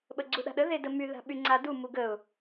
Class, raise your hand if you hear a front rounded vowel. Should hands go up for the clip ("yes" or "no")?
yes